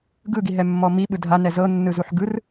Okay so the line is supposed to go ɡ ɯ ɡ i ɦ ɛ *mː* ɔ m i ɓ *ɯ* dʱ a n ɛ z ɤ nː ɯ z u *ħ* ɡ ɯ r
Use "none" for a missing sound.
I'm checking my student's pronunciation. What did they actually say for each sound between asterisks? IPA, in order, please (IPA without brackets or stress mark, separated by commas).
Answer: mː, ɯ, ħ